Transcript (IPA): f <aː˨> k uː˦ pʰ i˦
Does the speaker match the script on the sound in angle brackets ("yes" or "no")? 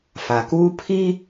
no